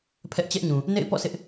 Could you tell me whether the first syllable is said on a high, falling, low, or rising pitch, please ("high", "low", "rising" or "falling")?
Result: high